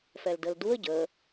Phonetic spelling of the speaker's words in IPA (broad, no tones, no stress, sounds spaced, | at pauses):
f ɛ l d ə l d u ə̯ ɟ ə